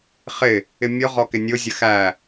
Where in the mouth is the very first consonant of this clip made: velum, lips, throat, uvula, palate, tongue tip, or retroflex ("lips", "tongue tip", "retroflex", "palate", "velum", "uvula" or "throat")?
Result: uvula